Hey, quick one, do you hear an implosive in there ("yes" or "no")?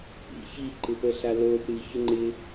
no